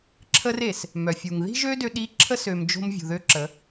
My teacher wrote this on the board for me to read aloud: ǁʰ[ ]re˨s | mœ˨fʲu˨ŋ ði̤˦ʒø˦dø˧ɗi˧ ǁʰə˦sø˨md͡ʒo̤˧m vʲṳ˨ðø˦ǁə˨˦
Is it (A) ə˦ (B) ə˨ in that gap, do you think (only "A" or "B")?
A